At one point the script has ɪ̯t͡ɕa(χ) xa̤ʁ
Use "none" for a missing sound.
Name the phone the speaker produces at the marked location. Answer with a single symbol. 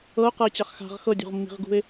χ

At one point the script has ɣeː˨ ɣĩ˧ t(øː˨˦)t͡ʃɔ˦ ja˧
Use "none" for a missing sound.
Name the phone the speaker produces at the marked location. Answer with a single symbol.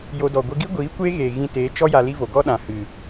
eː˨˦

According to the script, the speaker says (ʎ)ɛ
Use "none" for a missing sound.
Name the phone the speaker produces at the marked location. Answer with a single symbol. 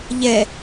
ʎ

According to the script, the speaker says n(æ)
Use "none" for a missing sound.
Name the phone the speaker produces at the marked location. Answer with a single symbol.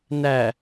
æ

